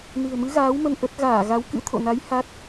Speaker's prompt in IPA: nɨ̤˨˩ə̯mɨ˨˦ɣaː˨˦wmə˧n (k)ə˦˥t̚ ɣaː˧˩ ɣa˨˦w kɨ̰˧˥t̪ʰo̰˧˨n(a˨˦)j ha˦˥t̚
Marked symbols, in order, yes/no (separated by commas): no, yes